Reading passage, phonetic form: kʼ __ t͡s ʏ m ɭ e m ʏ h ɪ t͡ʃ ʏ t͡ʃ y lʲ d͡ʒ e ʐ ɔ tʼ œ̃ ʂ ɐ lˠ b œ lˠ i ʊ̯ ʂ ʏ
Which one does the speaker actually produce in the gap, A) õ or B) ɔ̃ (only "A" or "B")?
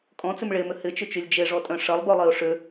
B